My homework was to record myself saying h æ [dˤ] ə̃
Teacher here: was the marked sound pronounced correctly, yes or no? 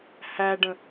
no